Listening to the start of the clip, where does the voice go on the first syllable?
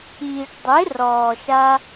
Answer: low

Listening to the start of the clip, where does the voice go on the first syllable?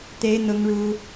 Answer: high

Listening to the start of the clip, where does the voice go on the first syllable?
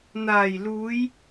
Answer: low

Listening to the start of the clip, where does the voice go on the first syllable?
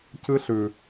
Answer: high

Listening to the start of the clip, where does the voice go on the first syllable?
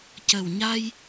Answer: low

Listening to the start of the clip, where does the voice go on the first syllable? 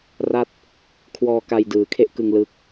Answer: falling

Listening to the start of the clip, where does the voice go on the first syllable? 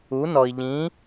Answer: rising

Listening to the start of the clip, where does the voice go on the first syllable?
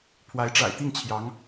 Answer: rising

